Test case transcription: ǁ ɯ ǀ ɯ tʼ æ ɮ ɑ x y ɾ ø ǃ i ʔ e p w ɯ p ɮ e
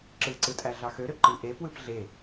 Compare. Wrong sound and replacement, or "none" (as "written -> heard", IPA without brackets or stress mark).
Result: y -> ø